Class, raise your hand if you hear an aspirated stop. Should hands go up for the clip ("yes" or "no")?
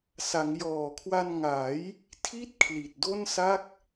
yes